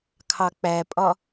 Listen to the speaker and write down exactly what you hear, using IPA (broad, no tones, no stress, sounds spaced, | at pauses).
kʰ ɑ k͡p æ pʼ ɒ